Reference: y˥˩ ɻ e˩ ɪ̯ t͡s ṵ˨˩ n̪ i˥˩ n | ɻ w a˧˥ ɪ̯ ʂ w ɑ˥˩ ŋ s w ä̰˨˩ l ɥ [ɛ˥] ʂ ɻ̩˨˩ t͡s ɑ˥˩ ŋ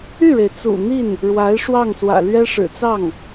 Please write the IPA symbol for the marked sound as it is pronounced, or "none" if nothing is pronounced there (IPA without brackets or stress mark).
ɛ˥